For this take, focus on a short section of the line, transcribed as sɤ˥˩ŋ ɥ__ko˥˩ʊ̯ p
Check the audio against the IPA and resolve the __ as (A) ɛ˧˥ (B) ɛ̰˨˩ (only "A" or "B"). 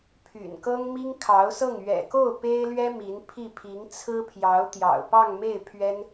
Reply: B